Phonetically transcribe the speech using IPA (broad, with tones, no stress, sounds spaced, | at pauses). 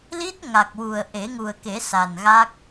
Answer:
l i˦˥ t̚ ŋ a˨˩ k̚ w u˨˩ ə̯ ʔ e˨˩˦ ŋ u˨˩ ə̯ k e˨˩˦ s a˨˩ n ɣ a˦˥ k̚